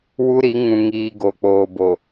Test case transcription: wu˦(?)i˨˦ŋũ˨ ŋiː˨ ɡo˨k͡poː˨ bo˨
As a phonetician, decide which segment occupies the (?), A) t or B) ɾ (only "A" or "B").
B